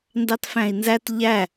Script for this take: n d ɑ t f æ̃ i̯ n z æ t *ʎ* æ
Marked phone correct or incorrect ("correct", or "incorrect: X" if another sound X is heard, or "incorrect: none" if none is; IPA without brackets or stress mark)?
correct